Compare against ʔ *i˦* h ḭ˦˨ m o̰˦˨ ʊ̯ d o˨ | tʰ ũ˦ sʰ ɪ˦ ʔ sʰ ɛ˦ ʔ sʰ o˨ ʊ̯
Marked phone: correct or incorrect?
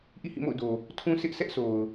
incorrect